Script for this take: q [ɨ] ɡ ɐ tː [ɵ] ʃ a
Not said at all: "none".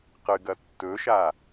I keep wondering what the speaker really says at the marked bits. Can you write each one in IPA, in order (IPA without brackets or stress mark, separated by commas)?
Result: ɨ, ɵ